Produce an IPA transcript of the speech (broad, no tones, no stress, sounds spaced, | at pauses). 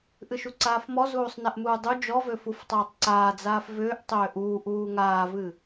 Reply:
ʔ ɨ ʃ u ǀ aː f m ɔ z uː sˤ n ɛ ʔ m uː dˤ u d͡ʒ ɔ v ø f u f tˤ aː tˤ ǀ aː d͡z aː f v ʏː ʔ tˤ ʏː ʔ uː ʔ uː ŋ aː v ɨ